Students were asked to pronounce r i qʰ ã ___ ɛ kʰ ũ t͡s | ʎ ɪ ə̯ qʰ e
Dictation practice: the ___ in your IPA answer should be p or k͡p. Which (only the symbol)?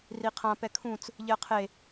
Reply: p